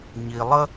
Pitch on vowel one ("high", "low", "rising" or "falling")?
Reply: low